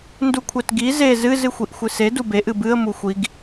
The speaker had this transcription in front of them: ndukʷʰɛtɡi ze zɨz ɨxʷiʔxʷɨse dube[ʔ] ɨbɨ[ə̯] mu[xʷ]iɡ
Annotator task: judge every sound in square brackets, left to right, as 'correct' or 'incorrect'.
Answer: correct, correct, correct

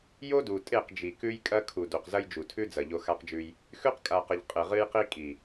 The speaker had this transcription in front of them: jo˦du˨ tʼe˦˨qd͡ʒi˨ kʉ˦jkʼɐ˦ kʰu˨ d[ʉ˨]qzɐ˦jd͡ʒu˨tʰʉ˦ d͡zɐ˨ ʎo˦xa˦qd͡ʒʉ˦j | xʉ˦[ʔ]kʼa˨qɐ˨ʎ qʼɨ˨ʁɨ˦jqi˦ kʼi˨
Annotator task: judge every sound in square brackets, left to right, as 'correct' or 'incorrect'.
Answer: incorrect: u˨, incorrect: q

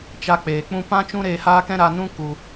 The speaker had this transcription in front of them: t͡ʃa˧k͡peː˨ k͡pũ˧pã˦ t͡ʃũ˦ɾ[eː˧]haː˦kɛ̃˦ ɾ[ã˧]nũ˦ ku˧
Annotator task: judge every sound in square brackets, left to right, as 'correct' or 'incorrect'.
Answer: correct, incorrect: a˧

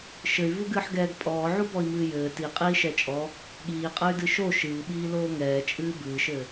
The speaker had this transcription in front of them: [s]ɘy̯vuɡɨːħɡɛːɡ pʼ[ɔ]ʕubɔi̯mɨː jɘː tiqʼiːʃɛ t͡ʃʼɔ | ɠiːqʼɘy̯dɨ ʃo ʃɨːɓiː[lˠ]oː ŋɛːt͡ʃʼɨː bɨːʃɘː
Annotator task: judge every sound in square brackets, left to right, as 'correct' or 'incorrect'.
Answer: incorrect: ʃ, incorrect: ɔː, incorrect: l

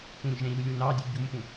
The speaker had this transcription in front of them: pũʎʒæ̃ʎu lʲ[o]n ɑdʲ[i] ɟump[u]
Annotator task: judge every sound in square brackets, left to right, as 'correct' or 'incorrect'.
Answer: incorrect: u, incorrect: e, incorrect: ũ

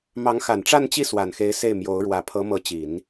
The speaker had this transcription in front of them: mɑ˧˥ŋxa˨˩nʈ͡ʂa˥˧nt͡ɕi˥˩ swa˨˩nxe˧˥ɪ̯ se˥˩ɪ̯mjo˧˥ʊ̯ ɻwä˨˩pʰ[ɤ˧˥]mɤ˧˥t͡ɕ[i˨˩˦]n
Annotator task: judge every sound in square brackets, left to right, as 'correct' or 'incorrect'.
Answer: correct, correct

